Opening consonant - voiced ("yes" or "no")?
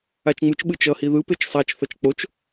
no